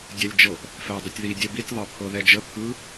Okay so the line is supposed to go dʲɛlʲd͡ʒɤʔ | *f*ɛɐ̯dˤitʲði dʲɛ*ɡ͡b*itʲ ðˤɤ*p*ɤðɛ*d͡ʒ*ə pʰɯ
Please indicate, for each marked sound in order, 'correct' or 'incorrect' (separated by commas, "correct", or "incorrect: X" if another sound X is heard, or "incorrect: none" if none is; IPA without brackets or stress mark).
correct, incorrect: b, incorrect: pʰ, correct